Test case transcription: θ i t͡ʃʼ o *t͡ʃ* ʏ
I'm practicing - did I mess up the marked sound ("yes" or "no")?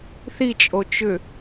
no